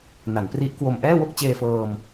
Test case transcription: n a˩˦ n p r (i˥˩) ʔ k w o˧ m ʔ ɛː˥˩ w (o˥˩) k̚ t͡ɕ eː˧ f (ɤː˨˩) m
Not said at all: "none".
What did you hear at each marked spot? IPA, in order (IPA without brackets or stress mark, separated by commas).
i˦˥, o˥˩, ɤː˧